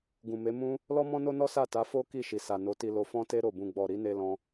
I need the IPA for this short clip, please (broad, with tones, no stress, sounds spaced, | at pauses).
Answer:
ɡ ũ˨ m e˨˦ m ũ˦ | l ɔ˦ m ɔ̃˦ n o˦ n ɔ˦ s a˦˨ t a˨˦ f o˦ k i˦˨ ʃ i˨ s a˨ n o˨˦ t i˧ l o˧ f ɔ̃˦ t e˦ ɾ o˦˨ b ũ˧ ɡ͡b ɔ˨ ɾ i˨˦ n e˧ l ɔ̃˦